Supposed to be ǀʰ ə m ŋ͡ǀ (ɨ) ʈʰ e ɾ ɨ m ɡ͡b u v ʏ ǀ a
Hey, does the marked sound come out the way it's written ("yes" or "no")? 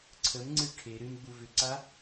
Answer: yes